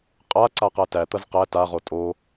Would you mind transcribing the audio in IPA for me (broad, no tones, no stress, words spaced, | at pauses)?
qʼa ǀaqætæt̪ɐz qæ taʁo tʼo